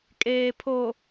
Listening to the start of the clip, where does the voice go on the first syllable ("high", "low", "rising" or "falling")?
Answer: low